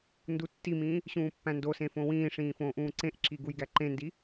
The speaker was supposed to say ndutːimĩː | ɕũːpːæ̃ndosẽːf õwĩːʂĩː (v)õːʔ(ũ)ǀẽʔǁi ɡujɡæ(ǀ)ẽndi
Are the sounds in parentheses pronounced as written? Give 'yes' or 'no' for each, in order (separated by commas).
no, no, no